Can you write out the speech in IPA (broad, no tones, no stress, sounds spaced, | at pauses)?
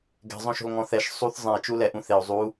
ɡ ɛ̤ zˤ õ ʃ o̤ l ŋ ɔ̃ θ ɛ ʃ sˤ u θ zˤ ɛ̃ i̯ t͡ʃ u l ɛ ʔ ũ θ e u̯ zˤ u